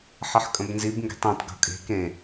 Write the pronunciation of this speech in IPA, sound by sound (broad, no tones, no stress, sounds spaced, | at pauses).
ħ ʌ ħ kʼ ə̃ b n z i b ŋ ɡ e̤ tˤ ẽ tˤ ɡ o̤ kʼ e̤ k ẽ